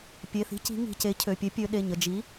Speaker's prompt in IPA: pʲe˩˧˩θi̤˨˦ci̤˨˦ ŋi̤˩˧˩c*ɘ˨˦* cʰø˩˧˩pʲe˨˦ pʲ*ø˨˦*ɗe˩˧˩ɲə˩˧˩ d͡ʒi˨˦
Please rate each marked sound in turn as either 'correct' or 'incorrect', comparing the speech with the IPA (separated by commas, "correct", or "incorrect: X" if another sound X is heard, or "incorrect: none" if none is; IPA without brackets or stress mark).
incorrect: e˨˦, correct